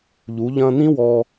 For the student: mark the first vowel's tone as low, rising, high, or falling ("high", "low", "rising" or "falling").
rising